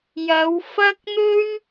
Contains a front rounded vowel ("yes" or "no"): no